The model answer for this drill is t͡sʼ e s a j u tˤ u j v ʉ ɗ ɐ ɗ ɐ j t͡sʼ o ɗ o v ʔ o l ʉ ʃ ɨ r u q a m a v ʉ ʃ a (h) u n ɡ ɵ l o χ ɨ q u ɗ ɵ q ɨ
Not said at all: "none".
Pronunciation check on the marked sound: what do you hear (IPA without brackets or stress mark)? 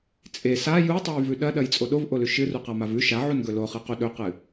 ʕ